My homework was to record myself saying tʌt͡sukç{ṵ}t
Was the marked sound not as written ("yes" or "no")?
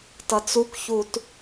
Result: yes